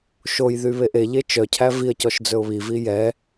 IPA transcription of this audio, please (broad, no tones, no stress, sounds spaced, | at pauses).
ʃ o j ð y β e ʔ e ʎ e t͡ʃ œ cʰ æ v i ə̯ c ɔ ʃ d͡z ɵ ʊ̯ β i v i j ɛ